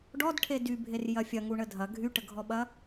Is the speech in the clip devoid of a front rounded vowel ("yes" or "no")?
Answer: no